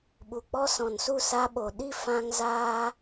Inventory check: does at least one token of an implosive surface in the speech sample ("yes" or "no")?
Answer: yes